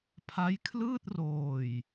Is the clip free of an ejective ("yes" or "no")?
yes